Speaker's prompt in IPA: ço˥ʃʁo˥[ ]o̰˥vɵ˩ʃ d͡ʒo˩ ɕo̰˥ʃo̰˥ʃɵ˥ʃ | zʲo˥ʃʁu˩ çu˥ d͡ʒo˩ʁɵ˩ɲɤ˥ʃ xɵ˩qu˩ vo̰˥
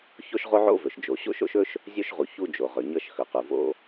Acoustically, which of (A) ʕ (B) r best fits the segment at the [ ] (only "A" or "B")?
A